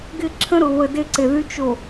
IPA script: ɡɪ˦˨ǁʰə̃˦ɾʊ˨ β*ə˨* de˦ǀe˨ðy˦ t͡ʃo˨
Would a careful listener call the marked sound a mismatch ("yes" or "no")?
no